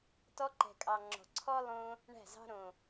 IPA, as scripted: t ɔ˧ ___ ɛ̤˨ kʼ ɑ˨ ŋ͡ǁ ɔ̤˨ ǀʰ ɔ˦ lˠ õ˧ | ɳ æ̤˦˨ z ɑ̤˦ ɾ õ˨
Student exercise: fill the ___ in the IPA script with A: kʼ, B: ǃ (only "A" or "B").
B